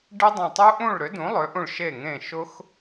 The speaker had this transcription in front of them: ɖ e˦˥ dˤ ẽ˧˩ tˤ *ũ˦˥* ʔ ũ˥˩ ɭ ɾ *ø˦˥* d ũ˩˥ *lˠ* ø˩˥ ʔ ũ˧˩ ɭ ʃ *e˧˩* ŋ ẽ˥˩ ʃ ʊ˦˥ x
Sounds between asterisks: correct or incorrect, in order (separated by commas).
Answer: incorrect, incorrect, correct, incorrect